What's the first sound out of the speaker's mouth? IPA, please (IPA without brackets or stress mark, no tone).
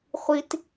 χʷ